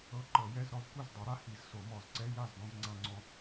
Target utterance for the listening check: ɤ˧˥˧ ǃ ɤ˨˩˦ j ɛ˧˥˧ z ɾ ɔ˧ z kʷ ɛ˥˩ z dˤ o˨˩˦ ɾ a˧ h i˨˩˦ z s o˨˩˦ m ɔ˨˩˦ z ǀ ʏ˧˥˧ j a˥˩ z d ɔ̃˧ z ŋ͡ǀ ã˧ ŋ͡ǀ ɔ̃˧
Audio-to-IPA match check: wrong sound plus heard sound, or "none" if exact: ʏ˧˥˧ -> ɛ˧˥˧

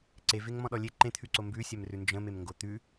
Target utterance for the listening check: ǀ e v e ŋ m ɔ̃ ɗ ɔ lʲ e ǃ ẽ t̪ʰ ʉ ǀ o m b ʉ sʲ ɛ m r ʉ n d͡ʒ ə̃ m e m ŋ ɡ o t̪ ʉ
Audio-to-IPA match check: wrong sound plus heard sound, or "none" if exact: none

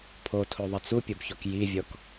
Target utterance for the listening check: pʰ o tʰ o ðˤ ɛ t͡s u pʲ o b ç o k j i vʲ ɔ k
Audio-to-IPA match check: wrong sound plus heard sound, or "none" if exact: none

